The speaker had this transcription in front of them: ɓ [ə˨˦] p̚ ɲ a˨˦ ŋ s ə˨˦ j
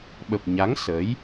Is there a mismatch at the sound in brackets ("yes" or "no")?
yes